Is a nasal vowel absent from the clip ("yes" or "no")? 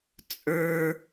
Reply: yes